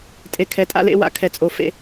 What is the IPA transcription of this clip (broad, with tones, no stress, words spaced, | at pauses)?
tʼe˨ kʰɛ˨tʼa̰˦lḛ˦ wa̰˦kʰɛ˨t͡sʼo˨ fḛ˨